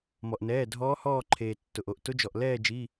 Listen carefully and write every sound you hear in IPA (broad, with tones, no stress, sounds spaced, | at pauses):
m ɔ˩ ʔ n ɛː˩˧˩ dʱ ɔː˧˥ h ɔː˦˨ ǃʰ eː˩ tː ʊ˩ ʔ o˩ ʔ t ʊ˧˥ d͡ʒ ɔ˩ ʔ l ɛː˦˨ d͡ʒ i˩˧˩